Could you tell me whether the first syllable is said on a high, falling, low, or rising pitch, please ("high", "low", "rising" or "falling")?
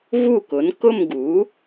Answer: falling